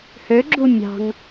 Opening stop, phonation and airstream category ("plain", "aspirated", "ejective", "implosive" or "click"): click